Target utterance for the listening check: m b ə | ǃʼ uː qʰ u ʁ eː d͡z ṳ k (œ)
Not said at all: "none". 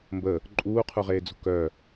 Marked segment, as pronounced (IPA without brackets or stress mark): œ